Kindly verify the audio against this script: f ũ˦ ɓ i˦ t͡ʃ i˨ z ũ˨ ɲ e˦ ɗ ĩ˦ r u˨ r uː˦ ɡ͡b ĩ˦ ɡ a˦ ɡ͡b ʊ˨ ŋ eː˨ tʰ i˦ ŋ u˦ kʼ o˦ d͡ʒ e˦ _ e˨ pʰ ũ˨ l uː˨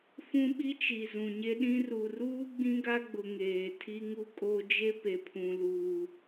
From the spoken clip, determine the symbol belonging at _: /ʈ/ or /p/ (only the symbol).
p